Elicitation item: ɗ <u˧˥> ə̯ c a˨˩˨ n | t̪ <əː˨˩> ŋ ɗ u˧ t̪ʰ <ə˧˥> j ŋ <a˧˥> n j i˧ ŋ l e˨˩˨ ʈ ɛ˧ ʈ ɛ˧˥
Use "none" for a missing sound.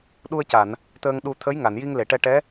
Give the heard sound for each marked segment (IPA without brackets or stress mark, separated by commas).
u˧, əː˧, ə˧˥, a˨˩˨